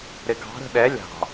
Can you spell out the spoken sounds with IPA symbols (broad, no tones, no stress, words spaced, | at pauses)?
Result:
ɾɪɡɑ̤ɾə̤ ɗɛ lʲɑ̤